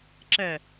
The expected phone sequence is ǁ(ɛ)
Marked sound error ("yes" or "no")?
no